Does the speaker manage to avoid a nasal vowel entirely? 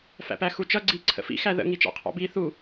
yes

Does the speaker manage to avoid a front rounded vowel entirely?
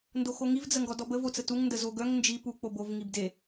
no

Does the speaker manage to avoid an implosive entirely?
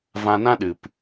no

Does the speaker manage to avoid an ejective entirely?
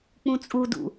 no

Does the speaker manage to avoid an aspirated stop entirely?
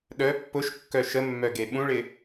yes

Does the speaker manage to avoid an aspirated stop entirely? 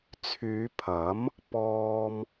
no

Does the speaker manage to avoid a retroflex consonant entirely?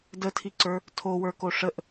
no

